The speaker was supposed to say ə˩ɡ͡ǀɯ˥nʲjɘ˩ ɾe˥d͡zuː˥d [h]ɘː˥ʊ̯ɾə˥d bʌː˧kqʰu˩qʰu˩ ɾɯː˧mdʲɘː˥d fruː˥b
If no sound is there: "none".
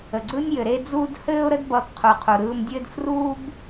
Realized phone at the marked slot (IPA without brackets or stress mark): h